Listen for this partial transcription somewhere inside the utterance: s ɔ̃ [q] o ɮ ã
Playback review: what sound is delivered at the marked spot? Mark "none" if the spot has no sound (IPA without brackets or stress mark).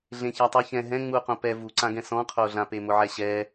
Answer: qʰ